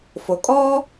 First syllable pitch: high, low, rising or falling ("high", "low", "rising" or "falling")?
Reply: low